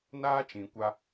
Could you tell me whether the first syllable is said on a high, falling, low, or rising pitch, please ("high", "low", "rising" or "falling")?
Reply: high